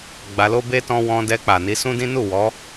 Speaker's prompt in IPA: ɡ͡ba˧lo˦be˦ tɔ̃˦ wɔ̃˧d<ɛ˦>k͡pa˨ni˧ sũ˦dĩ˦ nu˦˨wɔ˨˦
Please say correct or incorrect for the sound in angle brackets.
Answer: incorrect